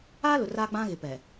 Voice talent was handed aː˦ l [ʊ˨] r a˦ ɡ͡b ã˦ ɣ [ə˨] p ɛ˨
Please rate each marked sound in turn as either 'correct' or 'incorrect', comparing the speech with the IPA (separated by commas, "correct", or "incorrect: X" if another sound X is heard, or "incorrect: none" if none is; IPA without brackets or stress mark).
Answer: correct, incorrect: ɪ˨